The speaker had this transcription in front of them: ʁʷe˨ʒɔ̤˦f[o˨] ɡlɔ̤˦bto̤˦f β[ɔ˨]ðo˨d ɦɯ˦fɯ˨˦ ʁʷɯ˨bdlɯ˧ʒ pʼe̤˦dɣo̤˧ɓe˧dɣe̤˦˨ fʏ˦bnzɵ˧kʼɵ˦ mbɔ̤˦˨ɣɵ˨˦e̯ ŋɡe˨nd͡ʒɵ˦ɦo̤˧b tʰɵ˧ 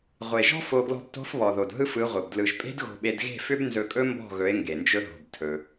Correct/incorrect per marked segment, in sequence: incorrect: o˧, correct

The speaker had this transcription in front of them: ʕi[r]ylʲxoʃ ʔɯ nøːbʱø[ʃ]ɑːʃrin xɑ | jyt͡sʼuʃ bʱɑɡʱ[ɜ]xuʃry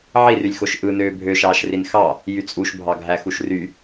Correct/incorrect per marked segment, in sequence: correct, correct, incorrect: æ

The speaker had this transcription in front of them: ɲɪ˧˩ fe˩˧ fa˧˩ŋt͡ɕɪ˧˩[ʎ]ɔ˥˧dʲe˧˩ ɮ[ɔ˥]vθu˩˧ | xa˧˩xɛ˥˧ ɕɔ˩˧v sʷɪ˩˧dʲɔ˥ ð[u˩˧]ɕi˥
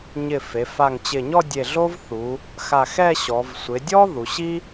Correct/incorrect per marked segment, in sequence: incorrect: ɲ, incorrect: o˥, correct

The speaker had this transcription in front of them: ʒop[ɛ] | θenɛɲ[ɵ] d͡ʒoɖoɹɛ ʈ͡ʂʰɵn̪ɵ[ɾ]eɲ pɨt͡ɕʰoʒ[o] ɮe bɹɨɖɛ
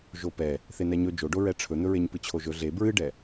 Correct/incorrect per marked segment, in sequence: correct, correct, incorrect: ɹ, incorrect: ɵ

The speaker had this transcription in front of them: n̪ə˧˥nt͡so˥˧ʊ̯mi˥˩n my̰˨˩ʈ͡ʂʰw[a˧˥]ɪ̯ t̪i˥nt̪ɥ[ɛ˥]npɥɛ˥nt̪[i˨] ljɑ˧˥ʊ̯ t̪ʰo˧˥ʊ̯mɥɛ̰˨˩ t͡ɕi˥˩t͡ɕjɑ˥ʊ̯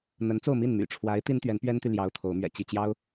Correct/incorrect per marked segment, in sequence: correct, incorrect: ɛ˧˥, incorrect: y˨

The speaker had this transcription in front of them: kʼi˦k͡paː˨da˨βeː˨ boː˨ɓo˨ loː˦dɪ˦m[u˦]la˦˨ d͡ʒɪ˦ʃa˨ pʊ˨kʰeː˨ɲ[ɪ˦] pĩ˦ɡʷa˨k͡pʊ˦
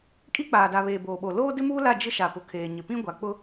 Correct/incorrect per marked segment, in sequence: incorrect: uː˦, incorrect: ɪ˨

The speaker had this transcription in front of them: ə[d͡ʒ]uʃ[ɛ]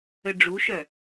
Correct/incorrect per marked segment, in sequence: incorrect: ɖ͡ʐ, incorrect: œ

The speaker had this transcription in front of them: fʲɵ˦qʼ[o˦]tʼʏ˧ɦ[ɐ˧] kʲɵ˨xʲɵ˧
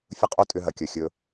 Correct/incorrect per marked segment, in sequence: correct, incorrect: ɐ˨

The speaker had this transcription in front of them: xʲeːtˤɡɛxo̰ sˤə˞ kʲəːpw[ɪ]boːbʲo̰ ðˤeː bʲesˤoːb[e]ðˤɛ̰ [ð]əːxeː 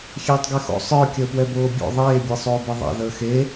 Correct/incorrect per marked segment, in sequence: incorrect: ɛ, correct, correct

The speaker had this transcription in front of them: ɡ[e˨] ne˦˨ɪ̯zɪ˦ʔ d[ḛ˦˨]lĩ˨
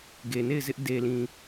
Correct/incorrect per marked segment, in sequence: correct, incorrect: e˨

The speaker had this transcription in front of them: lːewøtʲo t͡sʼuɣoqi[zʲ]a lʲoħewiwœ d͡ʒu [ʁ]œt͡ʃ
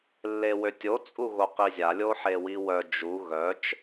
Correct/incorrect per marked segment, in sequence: correct, incorrect: ɣ

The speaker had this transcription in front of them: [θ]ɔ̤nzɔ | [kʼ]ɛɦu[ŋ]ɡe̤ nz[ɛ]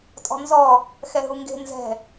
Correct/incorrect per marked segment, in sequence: incorrect: tʼ, incorrect: x, correct, incorrect: ɛ̤

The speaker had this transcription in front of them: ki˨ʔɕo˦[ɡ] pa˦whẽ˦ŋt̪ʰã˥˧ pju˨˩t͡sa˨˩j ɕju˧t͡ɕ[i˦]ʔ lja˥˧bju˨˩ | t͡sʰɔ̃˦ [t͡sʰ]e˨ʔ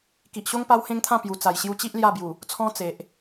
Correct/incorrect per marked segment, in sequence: incorrect: ŋ, correct, incorrect: t͡s

